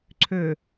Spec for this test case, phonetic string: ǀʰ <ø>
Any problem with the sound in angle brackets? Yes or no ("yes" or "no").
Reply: no